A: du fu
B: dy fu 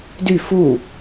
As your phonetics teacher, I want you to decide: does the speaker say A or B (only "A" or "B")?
B